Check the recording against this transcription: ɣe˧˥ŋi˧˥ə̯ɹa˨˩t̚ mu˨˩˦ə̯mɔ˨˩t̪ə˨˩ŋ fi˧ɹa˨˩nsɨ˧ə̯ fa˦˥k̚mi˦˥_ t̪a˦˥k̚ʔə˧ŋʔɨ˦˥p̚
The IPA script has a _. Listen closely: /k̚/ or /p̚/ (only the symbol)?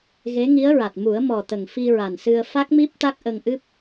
p̚